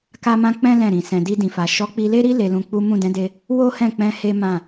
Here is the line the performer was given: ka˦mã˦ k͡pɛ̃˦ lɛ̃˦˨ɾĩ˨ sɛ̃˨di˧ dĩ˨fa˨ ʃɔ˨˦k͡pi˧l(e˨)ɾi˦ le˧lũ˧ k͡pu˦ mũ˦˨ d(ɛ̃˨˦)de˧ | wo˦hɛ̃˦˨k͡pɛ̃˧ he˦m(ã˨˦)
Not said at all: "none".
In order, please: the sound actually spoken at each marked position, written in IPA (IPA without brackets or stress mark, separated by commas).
e˦, ɛ̃˨˦, ã˦˨